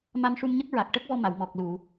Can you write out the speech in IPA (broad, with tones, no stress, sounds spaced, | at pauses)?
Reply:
m a˧ m ʂ u˧ m ɲ ə˦˥ k̚ ɹ a˨˩ k̚ ʈ ə˦˥ k̚ v ɔ˧ m a˨˩˨ w m ɔ˨˩ k̚ l u˨˩˨